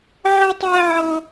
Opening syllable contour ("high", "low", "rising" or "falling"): high